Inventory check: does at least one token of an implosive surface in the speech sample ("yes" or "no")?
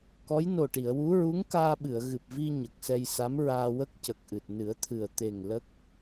yes